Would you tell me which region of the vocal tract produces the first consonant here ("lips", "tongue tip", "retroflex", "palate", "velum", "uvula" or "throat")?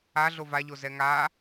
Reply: tongue tip